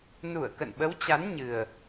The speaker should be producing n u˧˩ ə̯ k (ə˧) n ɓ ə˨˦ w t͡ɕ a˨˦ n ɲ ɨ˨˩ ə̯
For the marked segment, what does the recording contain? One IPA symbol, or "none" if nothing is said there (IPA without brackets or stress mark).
ə̰˧˨